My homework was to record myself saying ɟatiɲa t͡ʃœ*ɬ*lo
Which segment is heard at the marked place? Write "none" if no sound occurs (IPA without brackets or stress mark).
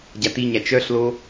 ɬ